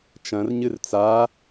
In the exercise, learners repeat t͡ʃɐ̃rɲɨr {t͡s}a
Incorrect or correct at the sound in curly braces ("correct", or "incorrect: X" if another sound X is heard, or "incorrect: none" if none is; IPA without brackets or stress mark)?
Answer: correct